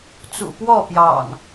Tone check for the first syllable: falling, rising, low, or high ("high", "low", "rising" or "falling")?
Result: low